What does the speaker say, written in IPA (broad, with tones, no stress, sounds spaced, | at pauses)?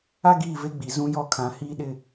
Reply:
a˦ ɡ iː˦˨ v e˦ ɡ͡b i˨ z ũ˦ j ɔ˦ kʰ ã˨˦ h iː˦ ɗ ɪ˦